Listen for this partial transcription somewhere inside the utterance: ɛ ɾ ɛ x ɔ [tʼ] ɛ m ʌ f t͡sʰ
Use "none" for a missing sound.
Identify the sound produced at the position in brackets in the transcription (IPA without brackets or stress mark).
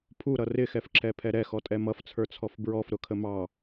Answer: tʼ